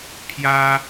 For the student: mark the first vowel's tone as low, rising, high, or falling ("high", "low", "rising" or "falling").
high